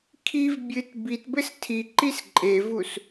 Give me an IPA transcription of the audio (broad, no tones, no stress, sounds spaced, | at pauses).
kʰ i v bʲ ɨ t b i t b ɘ s tʰ i ǃ i s ǃʼ e v u s